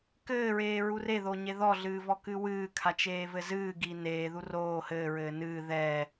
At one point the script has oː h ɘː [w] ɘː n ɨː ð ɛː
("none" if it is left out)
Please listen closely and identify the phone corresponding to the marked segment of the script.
ɹ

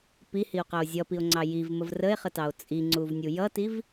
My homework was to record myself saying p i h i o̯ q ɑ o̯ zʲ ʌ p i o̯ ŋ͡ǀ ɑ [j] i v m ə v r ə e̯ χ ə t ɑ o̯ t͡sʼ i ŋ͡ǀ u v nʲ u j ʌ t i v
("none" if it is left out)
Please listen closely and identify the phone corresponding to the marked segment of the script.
j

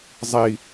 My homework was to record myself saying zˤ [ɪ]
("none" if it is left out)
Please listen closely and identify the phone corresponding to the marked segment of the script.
i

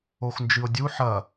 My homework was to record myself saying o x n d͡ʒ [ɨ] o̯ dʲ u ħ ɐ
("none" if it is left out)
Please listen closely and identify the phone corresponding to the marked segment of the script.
ɨ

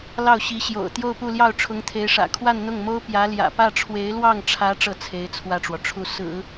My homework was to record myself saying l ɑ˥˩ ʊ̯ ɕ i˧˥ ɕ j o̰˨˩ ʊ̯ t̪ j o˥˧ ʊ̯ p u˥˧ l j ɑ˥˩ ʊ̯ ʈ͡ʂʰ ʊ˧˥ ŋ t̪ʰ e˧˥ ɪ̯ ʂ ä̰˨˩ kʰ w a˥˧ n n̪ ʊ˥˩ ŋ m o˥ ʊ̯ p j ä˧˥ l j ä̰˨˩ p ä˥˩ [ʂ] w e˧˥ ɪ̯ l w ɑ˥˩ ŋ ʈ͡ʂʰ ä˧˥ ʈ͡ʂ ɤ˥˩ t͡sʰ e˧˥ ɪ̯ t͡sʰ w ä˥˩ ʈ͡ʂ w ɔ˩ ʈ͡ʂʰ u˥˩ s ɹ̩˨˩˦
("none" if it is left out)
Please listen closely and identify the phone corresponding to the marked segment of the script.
ʈ͡ʂʰ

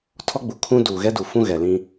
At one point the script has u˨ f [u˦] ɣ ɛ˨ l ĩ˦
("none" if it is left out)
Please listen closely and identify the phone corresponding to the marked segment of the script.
ũ˦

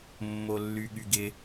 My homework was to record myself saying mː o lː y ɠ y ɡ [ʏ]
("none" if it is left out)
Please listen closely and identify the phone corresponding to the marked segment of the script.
ɪ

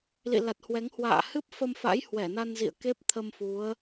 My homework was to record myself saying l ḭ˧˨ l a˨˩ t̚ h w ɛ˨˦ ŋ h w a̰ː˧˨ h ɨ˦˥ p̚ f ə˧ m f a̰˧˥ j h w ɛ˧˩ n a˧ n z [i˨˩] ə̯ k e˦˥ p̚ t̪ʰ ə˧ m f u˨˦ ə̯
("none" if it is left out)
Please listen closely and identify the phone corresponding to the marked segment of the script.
ḭ˧˨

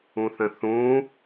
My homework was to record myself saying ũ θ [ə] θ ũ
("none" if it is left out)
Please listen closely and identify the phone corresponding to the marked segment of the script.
ə̃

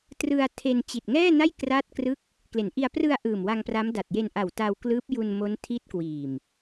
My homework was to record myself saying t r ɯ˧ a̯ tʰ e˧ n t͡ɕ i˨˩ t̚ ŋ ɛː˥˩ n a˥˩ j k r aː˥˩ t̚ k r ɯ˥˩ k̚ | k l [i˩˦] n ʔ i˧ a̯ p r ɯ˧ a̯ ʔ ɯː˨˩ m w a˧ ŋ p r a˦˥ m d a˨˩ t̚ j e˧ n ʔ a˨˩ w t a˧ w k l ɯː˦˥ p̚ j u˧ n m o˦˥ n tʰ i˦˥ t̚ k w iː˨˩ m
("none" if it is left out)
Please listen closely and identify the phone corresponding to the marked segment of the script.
e˩˦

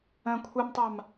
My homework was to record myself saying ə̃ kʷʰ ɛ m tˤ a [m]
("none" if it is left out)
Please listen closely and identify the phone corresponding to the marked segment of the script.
m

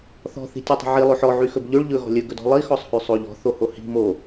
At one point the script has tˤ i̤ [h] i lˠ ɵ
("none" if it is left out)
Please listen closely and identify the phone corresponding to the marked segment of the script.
ʕ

